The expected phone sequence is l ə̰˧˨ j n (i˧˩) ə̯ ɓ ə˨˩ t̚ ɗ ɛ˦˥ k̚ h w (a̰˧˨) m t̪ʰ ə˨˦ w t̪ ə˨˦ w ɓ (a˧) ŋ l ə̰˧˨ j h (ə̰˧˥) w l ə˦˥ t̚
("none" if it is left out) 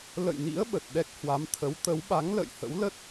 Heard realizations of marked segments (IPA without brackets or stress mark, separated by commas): ḭ˧˥, a˨˦, a˨˦, ə̰˧˥